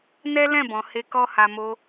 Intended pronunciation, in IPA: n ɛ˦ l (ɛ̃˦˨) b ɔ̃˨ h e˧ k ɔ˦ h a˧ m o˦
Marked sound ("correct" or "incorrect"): correct